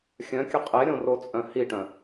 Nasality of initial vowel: nasal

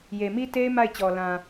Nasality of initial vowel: oral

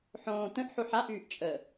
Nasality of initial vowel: nasal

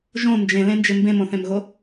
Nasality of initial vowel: nasal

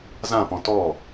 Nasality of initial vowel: nasal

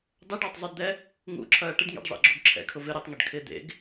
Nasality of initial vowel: oral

